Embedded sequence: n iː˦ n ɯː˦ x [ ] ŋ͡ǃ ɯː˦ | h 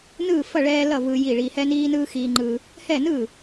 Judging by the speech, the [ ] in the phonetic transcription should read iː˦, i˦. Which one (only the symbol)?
iː˦